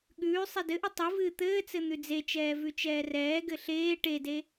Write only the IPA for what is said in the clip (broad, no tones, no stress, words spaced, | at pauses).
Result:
ɠʉː sˤedɘʔɨ tˤɨvɨː t̪ɘːt͡sɘ n̪ʉd͡zet͡ʃɛː vʉt͡ʃɛːrɛːɡɘ ɬeː ʈede